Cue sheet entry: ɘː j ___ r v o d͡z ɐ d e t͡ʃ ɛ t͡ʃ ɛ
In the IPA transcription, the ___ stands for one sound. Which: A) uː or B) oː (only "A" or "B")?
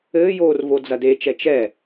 B